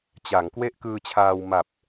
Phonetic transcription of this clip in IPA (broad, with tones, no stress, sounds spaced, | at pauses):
t͡ɕ a˩˦ ŋ k w e˥˩ ʔ k ɯː˧ t͡ɕʰ aː˧ w m a˨˩ p̚